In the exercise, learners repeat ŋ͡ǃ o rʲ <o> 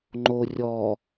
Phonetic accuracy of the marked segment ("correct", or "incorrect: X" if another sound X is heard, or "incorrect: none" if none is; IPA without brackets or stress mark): incorrect: ɔ